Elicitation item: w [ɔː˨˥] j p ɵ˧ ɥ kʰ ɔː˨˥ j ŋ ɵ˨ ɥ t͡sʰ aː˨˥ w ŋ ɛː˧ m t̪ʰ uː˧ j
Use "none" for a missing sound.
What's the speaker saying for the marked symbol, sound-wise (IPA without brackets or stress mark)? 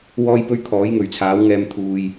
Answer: ɔː˧